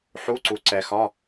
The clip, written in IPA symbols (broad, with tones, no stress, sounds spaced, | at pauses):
ħ u˧˥˧ ǀ u˨ ǀ ɛ˨ x ɒ˧˥˧